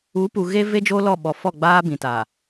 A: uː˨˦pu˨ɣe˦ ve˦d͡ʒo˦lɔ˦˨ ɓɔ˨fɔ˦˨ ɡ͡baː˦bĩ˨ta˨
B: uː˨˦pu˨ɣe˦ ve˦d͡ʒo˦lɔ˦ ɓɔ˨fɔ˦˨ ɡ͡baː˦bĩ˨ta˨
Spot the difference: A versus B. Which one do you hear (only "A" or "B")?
A